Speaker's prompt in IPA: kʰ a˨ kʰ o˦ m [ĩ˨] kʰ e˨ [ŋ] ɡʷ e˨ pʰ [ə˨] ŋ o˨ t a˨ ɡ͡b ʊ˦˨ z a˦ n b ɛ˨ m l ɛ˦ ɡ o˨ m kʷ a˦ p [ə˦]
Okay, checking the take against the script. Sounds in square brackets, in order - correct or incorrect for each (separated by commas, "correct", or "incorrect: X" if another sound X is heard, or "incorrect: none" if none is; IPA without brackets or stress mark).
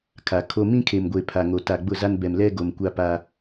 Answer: incorrect: ĩ˦, incorrect: m, incorrect: a˨, incorrect: a˦